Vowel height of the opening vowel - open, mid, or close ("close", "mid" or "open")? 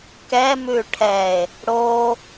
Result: mid